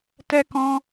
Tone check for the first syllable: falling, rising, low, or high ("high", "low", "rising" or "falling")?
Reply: high